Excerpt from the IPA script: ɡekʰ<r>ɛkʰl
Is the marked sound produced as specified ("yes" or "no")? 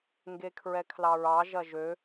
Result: no